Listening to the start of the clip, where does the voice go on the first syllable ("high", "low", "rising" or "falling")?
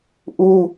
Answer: high